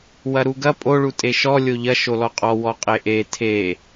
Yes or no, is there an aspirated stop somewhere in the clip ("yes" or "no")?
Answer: yes